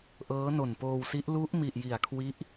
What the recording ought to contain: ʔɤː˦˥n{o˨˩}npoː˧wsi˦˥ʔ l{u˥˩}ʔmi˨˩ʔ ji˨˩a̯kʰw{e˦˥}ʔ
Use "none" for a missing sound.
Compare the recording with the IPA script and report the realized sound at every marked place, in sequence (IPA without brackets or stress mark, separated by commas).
o˨˩, u˦˥, i˦˥